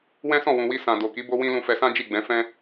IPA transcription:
wɛ̃˦sɔ̃˦˨wũ˨wi˧ sã˨do˨ki˨˦ bo˦wĩ˦ lũ˧fɛ˧sã˦ d͡ʒi˦˨ɡ͡bɛ̃˨˦fɛ̃˦

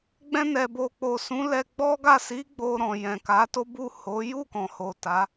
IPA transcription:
ɡ͡bɛ̃˧nɛ˨bo˨k͡po˨ sũ˨˦lɛ˧ɡ͡bɔ˦ɡa˦˨ si˨˦ ɡ͡bo˧ɾɔ̃˨ jɛ̃˨ka˨˦to˦bu˦˨ ho˨˦ ju˦˨kɔ̃˨ ho˨ ta˨˦

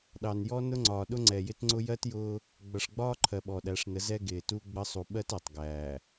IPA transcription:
ɗɑ˨njɔ˦ nʊ˦ŋ͡ǀɒː˨ɗʊ˦ ŋ͡ǀɛ˨jɪ˦tŋ͡ǀʊ˦ jɜ˦tjʊː˦ | ɡ͡bʌ˨ʂɡ͡bɒː˦ǃʰɜ˨ ɓɔ˨ɗæ˨˦ʂnə˨˦ zɛ˦ɡɪː˨ tu˦ɡ͡bə˦ sˤu˨ɓɜ˦t ɜ˨tˤ ɡæː˨

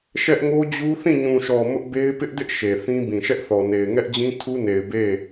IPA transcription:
ʃɛ˦ʔŋo˦d͡ʑu˦ θĩ˦˨ɲũ˨ʃɔ˨ mʊ˦ʔbe˦ɪ̯ pɪ˦ʔdɪ˦ʔ ʃe˨θĩ˦ bĩ˨ʃɛ˦ʔθɔ˨ne˨ɪ̯ ŋɛ˦ʔd͡ʑĩ˦ tʰu˦ne˨ɪ̯ be˦˨

